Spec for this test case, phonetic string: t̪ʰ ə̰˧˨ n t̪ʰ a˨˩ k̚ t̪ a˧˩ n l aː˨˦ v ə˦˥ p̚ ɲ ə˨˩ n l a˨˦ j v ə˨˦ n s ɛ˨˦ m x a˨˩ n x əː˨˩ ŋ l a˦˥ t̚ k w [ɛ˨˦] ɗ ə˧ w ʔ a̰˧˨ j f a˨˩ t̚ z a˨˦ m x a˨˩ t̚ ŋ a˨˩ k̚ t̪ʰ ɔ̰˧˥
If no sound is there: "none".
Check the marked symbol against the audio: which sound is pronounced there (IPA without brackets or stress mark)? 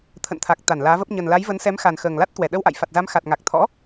ɛ˧˩